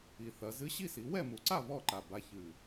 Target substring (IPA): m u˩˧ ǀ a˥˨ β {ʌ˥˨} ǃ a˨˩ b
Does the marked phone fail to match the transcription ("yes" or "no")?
yes